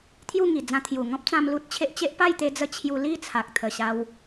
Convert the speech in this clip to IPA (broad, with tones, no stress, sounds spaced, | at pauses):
t̪ʰ j u˥˧ ŋ i˨˩ d͡z ã˧ t̪ʰ j u˨˩ ŋ ɔ̃˦ p̚ t͡s ã˧ m l u˦ t̚ t͡ɕʰ e˦ ʔ t͡ɕ e˦ ʔ p a˥˧ j t̪ e˧ d͡z ə˧ t͡ɕʰ j u˧ l i˥˧ t͡sʰ a˨ k̚ t̪ʰ ə˨˩ ɕ a˧ w